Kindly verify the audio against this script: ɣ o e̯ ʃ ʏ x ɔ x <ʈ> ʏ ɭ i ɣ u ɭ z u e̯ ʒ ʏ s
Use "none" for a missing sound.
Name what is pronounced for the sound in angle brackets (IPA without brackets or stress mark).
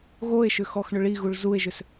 ɳ